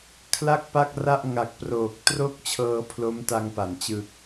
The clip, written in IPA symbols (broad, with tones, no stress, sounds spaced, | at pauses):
kʰ l a˥˩ k̚ p a˥˩ k̚ r a˥˩ ʔ ŋ a˨˩ k̚ p r oː˨˩ k̚ t r o˥˩ k̚ t͡ɕʰ ɤː˧ pʰ l o˦˥ m t a˧ ŋ p a˩˦ n t͡ɕ ɯ˨˩ k̚